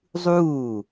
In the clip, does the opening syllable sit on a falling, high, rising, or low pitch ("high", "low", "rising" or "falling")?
falling